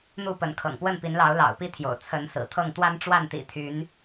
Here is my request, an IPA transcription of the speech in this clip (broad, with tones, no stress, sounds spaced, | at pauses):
n̪ u˥˨ p ə˨˦ n kʰ ɤ̰˨˩ ŋ p w ə˥˨ n p i˨˦ n l ɑ˨˦ ʊ̯ l ɑ̰˨˩ ʊ̯ p i˦ t̪ʰ j o̰˨˩ ʊ̯ t͡sʰ ə˨˦ n s ɹ̩˨˩ t̪ʰ ɤ˥˨ ŋ t̪ w a˦ n ʈ͡ʂ w a˥˨ n t̪ ḭ˨˩ t̪ʰ y˨˦ n